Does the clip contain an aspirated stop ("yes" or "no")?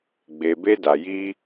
no